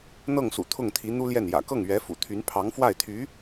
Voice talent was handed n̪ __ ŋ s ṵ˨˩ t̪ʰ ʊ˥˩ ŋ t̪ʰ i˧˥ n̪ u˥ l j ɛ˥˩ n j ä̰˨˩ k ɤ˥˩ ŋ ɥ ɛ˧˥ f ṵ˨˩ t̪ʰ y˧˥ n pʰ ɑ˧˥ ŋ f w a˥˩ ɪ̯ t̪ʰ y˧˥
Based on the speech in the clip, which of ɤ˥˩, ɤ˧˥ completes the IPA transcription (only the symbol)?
ɤ˥˩